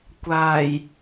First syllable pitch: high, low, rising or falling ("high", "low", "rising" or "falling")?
low